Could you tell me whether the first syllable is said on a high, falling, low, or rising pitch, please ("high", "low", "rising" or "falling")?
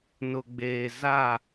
low